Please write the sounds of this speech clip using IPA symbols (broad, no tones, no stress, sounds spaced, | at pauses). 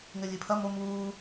ŋ ɘ lʲ ɨ pʰ ɐ m o m uː